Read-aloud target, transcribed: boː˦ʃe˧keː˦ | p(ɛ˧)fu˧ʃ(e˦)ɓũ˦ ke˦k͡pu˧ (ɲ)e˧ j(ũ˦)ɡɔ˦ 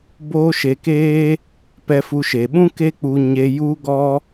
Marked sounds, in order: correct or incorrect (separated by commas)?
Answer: correct, incorrect, correct, incorrect